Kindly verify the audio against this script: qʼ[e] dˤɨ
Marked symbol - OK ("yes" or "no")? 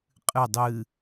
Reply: no